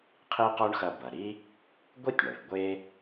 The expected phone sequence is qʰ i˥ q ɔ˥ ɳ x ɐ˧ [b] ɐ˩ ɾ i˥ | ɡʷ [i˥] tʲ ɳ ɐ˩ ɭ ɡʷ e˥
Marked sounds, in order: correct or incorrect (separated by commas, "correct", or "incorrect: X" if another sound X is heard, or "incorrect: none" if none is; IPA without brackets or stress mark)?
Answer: correct, correct